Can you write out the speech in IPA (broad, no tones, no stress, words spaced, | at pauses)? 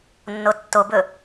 nːotːobɵ